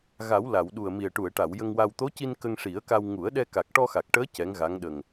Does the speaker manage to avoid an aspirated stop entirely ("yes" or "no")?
yes